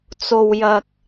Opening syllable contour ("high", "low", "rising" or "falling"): low